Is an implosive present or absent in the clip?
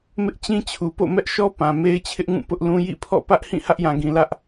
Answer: absent